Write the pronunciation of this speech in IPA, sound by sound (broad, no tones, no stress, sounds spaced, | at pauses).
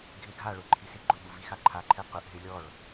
ɡʱ ɪ ɡʱ a ɭ ʊ ǃʰ i s i ɡ͡ǃ ʊ ɓ u v i x a ǃʰ a ǃʰ ɛ q ʊ ʔ ɦ ɪ lʲ ɔ ɭ